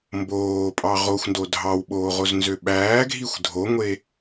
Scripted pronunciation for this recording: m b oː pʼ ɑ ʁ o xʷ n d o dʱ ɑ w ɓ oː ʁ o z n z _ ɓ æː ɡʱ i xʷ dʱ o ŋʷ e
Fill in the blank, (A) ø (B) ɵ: A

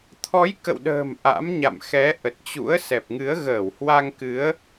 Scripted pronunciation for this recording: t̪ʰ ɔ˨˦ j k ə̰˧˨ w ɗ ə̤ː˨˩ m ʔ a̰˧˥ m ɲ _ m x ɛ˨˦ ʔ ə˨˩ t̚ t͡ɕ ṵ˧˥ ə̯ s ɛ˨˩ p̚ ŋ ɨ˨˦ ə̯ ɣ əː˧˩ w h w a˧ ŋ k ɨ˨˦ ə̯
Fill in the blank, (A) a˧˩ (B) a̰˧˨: B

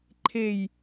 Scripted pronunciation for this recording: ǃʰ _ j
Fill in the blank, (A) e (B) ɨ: A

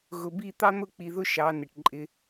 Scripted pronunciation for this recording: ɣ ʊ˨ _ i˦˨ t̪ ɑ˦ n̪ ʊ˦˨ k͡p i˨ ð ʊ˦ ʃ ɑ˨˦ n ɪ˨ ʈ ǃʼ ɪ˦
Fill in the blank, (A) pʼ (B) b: B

